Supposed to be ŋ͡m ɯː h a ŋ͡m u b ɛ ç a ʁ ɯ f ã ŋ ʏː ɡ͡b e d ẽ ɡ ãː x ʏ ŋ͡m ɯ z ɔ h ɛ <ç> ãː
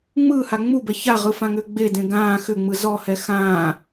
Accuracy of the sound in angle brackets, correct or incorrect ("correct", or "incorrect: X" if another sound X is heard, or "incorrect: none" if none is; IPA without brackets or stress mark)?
incorrect: x